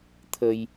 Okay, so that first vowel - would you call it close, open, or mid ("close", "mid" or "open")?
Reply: mid